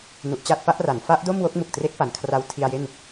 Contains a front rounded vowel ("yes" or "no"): no